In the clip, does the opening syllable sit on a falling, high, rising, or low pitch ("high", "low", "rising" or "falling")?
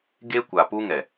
high